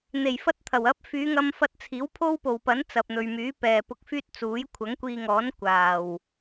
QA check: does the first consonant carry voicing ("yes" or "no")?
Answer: yes